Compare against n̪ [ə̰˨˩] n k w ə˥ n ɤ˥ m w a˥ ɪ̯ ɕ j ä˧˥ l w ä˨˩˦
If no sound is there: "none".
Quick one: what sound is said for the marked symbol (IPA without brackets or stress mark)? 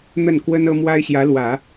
ə˥˩